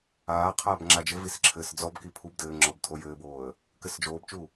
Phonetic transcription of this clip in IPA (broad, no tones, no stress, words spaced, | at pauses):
aː qʰaːbŋ͡ǁad͡ʒɘvis ǁʰɘːsd͡zɔbki pʰub dɘːŋ͡ǁɔb tʰojɘːboːə̯ | kɘsd͡ʒoːbt͡ʃu